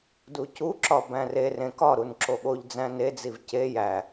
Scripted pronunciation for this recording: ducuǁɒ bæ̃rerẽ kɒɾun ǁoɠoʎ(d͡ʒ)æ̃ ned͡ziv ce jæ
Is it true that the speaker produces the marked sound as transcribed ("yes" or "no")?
no